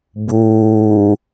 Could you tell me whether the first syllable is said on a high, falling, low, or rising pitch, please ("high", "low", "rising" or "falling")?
low